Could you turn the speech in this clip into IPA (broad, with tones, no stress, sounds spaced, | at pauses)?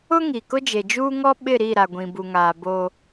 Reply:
ʊ˦ ŋ i˨ k ʊ˦ d͡ʒ e˨ d͡ʒ uː˦ ŋ ɔ˦ ɓ ɪ˦˨ ɾ i˦˨ ɾ a˨ ɡʷ ĩ˨ b u˨ ŋ aː˨ b oː˦